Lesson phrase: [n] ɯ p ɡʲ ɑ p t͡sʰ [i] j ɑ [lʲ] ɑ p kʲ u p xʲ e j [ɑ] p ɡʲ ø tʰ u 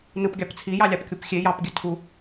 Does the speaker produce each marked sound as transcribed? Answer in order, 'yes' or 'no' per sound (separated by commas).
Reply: yes, yes, yes, yes